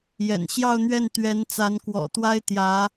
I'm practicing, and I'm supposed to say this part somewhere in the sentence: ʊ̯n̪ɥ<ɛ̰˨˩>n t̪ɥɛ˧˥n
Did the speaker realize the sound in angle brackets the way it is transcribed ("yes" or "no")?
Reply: no